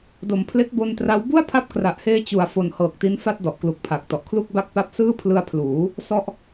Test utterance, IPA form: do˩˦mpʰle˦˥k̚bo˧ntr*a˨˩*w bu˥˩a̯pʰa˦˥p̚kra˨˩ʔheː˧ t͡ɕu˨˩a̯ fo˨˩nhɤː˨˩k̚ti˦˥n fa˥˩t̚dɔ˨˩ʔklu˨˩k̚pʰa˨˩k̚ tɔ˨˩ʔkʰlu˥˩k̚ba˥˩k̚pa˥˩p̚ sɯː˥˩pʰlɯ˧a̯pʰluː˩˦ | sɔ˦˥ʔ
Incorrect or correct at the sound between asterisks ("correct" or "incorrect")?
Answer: incorrect